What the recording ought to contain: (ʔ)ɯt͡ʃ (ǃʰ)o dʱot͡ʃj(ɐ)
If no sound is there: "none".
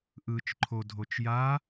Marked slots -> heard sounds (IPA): ʔ, ǃʰ, a

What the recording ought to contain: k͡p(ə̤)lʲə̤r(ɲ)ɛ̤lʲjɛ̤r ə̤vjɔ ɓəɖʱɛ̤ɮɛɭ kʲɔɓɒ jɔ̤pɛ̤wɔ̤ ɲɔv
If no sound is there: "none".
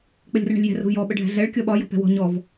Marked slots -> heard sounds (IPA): ə, ɳ

